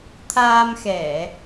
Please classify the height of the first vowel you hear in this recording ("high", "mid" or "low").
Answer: low